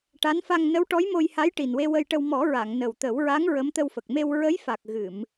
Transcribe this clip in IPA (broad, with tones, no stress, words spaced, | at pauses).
ʈa˧˥nfa˧ŋ nə˧˥wʈɔ˧˥j mo˧jha˧˥jʈi˨˩nwe˧ wə˧jʈə˧w mɔ˨˩˦ɹa˨˩˨ŋ nə˨˩wt̪ə˨˩˦wɹa˧˥ŋ ɹə˧˥mt̪ə˧wfə˨˩k̚ me˧w ɹə˧˥jfa˨˩k̚ ɣɨ˨˩˨m